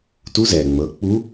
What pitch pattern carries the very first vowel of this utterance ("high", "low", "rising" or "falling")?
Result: rising